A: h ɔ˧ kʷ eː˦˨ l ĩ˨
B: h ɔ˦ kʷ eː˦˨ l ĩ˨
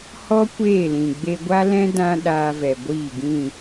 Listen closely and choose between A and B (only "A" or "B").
B